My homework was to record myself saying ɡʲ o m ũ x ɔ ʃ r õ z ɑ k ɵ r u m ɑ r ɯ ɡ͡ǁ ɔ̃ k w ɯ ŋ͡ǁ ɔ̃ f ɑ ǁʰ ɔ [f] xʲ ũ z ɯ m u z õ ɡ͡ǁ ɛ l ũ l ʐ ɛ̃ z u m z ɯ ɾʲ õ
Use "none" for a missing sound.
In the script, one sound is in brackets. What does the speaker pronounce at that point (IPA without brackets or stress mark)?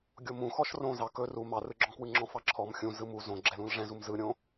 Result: m